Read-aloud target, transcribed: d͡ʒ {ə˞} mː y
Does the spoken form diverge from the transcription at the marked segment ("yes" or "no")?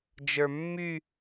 no